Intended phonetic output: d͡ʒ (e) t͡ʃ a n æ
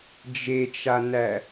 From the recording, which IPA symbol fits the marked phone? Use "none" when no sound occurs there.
e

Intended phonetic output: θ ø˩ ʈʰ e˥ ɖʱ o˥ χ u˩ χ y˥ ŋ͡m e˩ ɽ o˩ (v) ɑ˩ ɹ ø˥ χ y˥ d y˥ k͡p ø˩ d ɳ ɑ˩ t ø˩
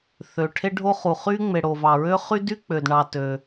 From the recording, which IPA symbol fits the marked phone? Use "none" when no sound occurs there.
v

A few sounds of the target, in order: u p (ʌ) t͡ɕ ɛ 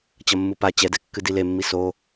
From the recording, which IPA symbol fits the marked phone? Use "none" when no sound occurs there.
a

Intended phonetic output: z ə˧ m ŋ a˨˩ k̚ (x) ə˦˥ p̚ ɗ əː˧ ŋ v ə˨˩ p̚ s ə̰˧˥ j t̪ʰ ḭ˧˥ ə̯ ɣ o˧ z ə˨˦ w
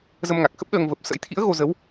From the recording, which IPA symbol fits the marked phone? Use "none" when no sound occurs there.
x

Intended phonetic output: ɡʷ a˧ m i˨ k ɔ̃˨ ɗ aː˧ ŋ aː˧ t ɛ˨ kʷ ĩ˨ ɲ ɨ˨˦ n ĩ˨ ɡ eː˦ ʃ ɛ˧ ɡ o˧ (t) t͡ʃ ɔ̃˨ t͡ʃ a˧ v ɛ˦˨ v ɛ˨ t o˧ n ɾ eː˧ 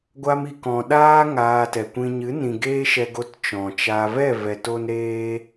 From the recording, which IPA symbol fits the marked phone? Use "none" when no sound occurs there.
t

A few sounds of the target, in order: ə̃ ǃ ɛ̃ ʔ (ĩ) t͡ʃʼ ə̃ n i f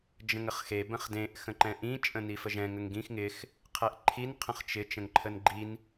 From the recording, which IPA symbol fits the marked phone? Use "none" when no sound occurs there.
ĩ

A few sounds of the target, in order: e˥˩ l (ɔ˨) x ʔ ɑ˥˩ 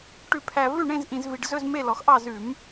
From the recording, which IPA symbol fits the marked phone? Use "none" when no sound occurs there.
ɔ˨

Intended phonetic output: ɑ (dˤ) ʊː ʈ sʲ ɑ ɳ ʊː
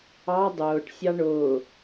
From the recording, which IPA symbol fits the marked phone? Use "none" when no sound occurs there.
dˤ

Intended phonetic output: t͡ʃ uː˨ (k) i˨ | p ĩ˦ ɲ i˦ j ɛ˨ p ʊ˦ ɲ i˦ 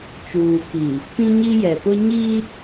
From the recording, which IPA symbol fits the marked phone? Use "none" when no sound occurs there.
k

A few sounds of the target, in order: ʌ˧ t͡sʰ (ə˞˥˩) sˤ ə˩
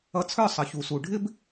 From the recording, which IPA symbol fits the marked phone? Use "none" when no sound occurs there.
ə˞˥˩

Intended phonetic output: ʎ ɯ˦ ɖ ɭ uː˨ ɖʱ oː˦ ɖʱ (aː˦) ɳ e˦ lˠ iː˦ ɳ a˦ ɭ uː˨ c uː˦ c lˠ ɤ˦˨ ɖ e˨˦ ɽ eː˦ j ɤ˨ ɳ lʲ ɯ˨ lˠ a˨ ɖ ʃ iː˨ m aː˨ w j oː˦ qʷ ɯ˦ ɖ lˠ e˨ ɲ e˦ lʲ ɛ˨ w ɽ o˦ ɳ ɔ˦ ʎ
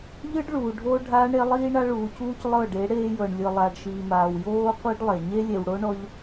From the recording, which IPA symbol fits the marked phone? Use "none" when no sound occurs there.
aː˦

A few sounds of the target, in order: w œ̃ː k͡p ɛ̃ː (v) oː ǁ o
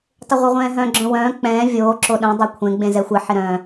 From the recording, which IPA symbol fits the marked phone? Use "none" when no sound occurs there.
vʲ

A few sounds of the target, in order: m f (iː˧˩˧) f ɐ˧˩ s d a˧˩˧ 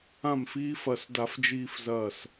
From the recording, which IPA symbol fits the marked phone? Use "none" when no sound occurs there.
iː˧˥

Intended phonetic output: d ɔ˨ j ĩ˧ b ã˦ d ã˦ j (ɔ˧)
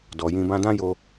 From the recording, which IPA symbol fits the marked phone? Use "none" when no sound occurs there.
o˧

